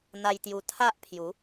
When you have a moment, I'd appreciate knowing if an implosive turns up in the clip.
no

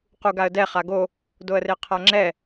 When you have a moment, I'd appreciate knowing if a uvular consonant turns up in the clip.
yes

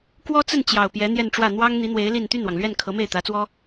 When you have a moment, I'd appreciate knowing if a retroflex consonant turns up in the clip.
yes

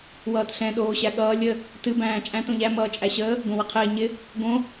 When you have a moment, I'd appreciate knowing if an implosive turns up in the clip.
yes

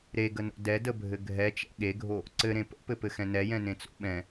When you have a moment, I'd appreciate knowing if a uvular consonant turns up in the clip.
no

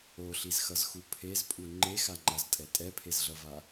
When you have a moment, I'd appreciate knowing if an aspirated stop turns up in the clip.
yes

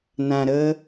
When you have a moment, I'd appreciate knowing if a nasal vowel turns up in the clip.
yes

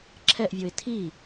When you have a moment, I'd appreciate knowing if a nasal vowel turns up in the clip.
no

